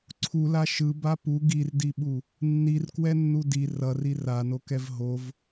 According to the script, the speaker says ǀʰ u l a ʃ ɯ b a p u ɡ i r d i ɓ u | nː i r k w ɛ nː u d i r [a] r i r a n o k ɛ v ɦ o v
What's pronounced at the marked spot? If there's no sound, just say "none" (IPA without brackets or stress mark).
ʌ